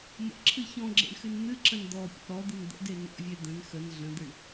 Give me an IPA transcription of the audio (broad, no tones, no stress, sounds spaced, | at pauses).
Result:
m ə̰ ǁʰ ɨ ç ɔ̃ ɡ͡ǁ ḛ ɳ x ɨ n n̪ ɨ ǁ ə̃ n d̪ ɔ pʲ ɔ̰ ɾ ɔ d̪ ɨ n d̪ ə̰ d e n ɔ̰ vʲ e d̪ ə̃ n x ə n ɮ ə̃ d̪ ɨ ɳ